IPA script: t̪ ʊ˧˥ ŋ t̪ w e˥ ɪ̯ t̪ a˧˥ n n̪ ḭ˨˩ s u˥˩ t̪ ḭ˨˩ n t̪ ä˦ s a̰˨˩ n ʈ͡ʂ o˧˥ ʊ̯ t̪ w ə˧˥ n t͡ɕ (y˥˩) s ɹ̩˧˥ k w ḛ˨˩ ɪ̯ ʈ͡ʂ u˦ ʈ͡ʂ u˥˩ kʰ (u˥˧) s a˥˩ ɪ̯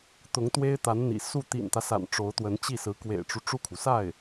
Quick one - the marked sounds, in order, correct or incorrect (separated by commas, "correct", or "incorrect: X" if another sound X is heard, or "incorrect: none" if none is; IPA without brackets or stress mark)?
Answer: incorrect: i˥˩, incorrect: u˩